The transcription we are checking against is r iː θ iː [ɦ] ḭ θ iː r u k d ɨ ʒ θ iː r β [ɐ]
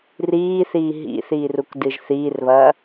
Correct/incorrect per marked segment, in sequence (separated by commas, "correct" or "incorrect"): correct, incorrect